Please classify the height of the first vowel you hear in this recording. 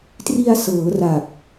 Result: high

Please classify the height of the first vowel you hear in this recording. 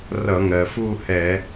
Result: mid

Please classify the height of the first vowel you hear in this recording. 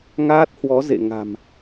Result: low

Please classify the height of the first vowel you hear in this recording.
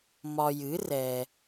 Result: low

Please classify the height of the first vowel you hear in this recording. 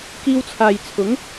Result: high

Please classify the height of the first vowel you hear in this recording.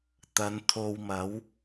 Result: low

